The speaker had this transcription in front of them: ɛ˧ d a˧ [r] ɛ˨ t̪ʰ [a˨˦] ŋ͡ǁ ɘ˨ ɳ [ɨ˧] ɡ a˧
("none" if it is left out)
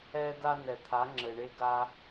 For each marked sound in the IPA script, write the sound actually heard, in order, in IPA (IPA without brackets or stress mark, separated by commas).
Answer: n, a˨˦, e˧